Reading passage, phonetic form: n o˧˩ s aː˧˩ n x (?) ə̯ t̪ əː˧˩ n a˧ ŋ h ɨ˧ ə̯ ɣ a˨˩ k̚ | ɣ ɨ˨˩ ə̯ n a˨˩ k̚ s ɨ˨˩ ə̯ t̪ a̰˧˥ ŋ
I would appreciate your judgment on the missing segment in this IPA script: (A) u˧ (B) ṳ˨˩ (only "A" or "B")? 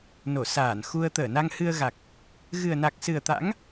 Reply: A